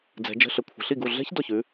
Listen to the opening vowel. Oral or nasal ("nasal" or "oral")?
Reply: oral